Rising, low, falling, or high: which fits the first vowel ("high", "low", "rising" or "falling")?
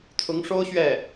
rising